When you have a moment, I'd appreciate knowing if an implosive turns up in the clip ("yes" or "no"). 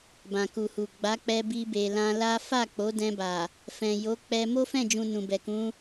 no